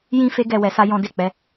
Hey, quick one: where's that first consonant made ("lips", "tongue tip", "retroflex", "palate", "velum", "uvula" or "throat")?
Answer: palate